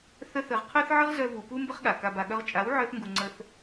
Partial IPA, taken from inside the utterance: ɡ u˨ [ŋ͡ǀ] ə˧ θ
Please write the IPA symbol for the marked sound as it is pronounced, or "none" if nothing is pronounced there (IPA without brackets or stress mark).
ŋ͡ǀ